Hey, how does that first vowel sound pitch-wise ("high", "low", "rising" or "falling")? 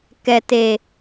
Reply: low